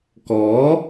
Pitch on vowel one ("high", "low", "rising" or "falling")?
rising